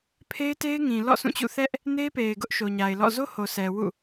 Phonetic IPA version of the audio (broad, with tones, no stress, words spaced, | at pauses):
pʰe˦ɪ̯te˦ɪ̯ŋĩ˨lɔ̰˦˨ sũ˦˨t͡ɕṵ˦˨ θɛ˦ʔ | ne˦pe˨ɪ̯ ɡʊ˦ʔʃo˨ɲa˨ɪ̯lɔ̰˦˨ zo˦ho˨sɛ˨ wṵ˦˨